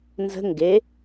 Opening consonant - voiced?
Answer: yes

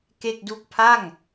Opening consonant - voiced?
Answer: no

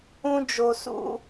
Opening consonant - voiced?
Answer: yes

